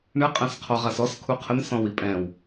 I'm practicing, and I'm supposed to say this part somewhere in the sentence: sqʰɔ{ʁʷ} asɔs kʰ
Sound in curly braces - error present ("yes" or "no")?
yes